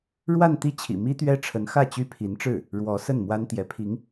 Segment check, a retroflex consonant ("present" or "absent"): present